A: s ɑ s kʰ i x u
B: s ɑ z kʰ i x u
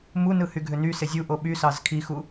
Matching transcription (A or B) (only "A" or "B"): B